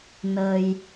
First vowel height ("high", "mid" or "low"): mid